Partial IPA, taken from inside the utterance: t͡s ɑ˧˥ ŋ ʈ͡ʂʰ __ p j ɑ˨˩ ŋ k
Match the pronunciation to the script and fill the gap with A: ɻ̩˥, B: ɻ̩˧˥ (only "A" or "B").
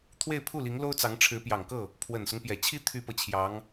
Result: B